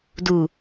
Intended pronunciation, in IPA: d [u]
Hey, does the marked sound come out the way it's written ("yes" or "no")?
yes